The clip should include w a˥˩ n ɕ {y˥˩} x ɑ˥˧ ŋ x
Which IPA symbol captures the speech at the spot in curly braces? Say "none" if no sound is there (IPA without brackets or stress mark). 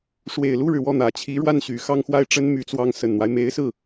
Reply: y˨˩